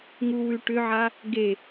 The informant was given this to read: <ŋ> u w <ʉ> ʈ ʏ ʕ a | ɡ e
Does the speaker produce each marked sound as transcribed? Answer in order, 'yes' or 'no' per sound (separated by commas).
yes, yes